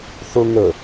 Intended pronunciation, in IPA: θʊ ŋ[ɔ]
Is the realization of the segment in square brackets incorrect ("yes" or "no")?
yes